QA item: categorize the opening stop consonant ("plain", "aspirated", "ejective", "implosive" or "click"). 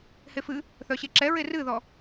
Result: click